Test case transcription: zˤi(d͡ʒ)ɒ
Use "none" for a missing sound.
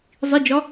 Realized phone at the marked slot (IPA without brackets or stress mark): d͡ʒ